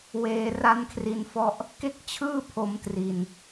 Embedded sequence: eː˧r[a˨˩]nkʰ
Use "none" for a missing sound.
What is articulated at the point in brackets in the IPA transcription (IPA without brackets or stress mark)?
a˦˥